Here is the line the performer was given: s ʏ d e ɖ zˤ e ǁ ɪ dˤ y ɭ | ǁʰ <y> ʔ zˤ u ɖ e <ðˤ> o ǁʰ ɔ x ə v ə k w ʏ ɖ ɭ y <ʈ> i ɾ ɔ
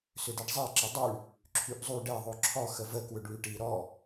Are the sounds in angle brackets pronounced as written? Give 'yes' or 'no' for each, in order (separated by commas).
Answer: yes, yes, yes